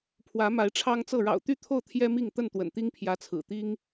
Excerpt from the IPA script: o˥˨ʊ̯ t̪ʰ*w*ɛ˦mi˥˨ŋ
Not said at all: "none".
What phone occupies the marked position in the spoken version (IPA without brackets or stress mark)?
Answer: j